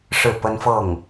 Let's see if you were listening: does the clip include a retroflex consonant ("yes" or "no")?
yes